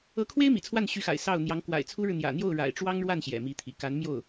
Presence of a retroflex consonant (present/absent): present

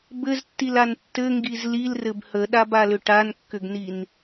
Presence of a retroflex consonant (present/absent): present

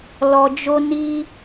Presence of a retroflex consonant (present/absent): absent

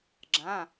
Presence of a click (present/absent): present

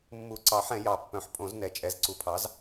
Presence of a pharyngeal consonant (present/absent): present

